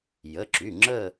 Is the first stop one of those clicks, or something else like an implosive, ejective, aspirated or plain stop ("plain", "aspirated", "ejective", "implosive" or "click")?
click